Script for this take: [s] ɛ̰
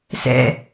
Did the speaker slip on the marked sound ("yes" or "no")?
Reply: no